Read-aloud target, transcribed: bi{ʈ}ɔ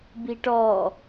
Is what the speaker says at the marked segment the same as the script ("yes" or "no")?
yes